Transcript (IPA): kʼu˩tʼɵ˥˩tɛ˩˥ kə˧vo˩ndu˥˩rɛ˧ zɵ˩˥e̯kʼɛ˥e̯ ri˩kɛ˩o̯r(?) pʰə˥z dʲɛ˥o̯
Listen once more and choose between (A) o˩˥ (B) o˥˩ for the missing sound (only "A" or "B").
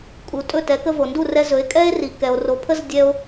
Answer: A